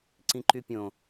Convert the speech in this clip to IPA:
ǀ ĩ ǃ y pʲ õ

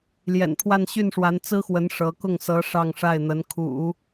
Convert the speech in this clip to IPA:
l j ɛ̰˨˩ n pʰ w a˥˧ n ɕ y˥˩ n ʂ w a˧˥ n t͡s ɹ̩˥ x w ə˧˥ n ʂ ɤ˧˥ k ʊ˥˩ ŋ s ɤ˧˥ ʂ ɑ˥˧ ŋ ʂ a˥˩ ɪ̯ n̪ ə˧˥ n kʰ ṵ˨˩˦

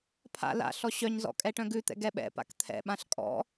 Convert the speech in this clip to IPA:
pʰ a̰ l a̰ ɬ ɔ ɕ œ ɲ z ɔ̰ kʼ ɛ ʈ œ̃ ɡ ʉ t̪ ɛ̰ ɡ ɛ ɓ ɛ̰ p a̰ k t̪ʰ ɛ̰ ɓ ã ɬ kʼ ɔ̰

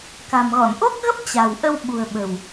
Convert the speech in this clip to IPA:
k a̤˨˩ m ɣ ɔ˧˩ n ʔ o˦˥ k̚ ɣ ə˦˥ p̚ t͡ɕ a̤˨˩ w ʔ ə˧ w ɓ ṳ˨˩ ə̯ ɓ ə̤˨˩ w

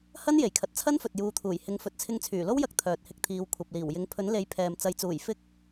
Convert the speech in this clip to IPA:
h ɐ˥ n j e˨˩ j kʰ ɐ˨ t̚ t͡sʰ ɐ˥ n f ɵ˨ t̚ j uː˨˧ t̪ʰ uː˨˩ j h ɪ˨˥ ŋ f ɵ˨ t̚ t͡sʰ ɪ˧ ŋ t͡sʰ yː˨˩ l o˥ w j ɐ˧ k̚ t̪ʰ œː˨ t̚ h ɪ˧ k̚ t̪ʰ iː˨˧ w kʷʰ ɐ˨ p̚ l iː˨˩ w j ɪ˨˥ ŋ pʰ ɵ˨˥ n l e˨˥ j pʰ ɛː˨ m t͡s ɐ˨ j t͡s uː˨˩ j f ɪ˥ k̚

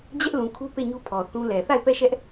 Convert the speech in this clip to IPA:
d͡ʑ ɛ˦ ʔ l ũ˨ kʰ u˦ p e˦˨ ɲ u˦ pʰ ɔ˨ θ ũ˦ l ɛ˨ θ a˦˨ ɪ̯ p ɛ˦˨ ʃ ɛ˦ ʔ

